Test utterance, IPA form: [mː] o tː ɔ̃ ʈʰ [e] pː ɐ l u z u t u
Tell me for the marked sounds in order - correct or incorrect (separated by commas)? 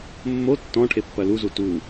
correct, correct